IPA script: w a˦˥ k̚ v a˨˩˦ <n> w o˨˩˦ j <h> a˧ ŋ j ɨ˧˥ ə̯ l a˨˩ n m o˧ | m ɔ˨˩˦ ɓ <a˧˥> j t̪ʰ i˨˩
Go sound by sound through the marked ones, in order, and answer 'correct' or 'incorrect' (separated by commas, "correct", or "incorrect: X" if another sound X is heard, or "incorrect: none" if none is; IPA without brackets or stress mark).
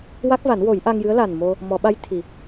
correct, incorrect: ʔ, correct